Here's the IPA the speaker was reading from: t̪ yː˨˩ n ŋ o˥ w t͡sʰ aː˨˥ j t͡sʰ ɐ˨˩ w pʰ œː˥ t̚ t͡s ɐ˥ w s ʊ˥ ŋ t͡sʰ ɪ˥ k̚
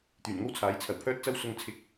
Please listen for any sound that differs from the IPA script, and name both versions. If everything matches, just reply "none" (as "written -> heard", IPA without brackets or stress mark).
none